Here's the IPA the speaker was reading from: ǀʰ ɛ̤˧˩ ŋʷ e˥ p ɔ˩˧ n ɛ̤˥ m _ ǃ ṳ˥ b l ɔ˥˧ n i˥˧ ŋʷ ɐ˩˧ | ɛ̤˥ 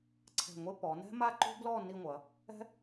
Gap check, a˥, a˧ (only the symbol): a˥